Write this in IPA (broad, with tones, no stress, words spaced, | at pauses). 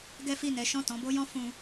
ɡɛ˦fi˦˨nɛ˨˦ ʃɔ̃˦˨tɔ̃˨˦bo˦jɔ̃˦ fũ˧